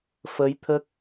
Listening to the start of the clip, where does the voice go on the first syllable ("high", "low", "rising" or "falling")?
rising